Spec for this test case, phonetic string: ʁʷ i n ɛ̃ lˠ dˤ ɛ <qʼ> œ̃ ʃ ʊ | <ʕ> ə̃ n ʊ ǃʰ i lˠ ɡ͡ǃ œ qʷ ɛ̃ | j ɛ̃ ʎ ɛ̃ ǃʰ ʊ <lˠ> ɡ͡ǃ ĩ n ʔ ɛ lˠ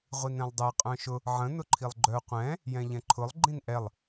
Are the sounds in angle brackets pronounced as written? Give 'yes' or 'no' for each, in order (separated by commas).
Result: yes, yes, yes